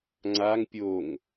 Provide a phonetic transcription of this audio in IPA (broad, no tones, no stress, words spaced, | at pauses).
ŋ͡ǀaŋ pʲoŋ